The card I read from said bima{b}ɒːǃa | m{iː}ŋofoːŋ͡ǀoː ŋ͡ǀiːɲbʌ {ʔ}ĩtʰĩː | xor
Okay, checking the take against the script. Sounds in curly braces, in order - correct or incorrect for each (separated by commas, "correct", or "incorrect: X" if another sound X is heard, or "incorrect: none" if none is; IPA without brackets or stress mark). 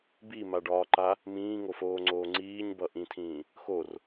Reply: incorrect: ɖ, incorrect: ĩː, correct